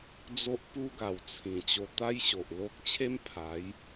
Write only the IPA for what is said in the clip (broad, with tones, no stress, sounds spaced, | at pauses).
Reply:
d͡z o˦ ʔ p u˦ ɡ a˨˩ w t͡sʰ ĩ˨˩ t͡ɕ o˧ t̪ a˦ j ɕ o˨ ʔ l o˦ k̚ t͡ɕʰ e˦ m pʰ a˨˦ j